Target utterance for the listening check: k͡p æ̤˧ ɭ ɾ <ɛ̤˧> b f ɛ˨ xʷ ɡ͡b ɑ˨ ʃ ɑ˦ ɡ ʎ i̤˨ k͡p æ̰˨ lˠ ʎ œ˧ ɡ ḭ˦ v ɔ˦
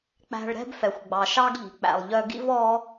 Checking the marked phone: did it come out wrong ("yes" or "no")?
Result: yes